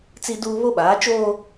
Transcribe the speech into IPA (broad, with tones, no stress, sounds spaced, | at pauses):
t͡s i˦ d uː˦ β o˦ ɓ aː˨˦ t͡ʃ oː˦